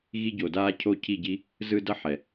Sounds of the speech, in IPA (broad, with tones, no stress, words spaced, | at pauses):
ɣi˧ɟo˨daː˧ cʰo˦˨cʰi˦˨ɟi˦ | zɯ˧ dʌ˦ħɛ˨